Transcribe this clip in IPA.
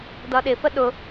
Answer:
d ʌ ɗ ɪ f ə ɗ ʊ

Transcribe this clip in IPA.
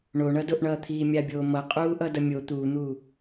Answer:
ɳ o ɳ ʌ d o ʔ ɳ ʌː t̪ʰ iː mʲ a bʲ oː m ʌ qʼ uː ʔ ʌ d ʌ mʲ o t̪ uː n̪ uː

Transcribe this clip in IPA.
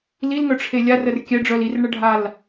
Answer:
l i l ŋ œ ʈ͡ʂʰ e lʲ a r ə r kʲ ɛ ɖ͡ʐ œ l i r ɳ ə ɖʱ a l

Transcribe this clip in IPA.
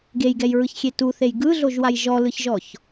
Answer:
ɡ e j ɡ ɛ j ɹ ɯ ç xʲ e t u θ e j ɡ ɯ ɮ o ʒ w a j ʒ ɔ l ɯ ç ʒ ɔ ç

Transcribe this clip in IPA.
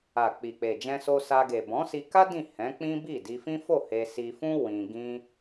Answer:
a˨ k͡p i˨ k͡p e˨ d͡ʒ ɛ̃˧ s o˧ s a˧ ɡ e˨ b ɔ̃˨˦ s i˧ k a˦ d ĩ˦˨ h ɛ̃˨˦ k͡p ĩ˦ b i˦˨ d i˧ f ĩ˦ f o˦˨ h e˧ s i˧ f ũ˦ w ĩ˧ ɡ ĩ˦

